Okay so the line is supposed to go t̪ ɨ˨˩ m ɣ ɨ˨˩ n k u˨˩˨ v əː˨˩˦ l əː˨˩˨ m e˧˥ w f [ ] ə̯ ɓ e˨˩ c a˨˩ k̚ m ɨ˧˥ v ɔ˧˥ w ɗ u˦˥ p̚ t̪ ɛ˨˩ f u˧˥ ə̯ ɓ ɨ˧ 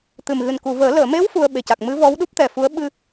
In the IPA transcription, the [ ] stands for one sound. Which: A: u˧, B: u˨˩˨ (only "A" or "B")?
A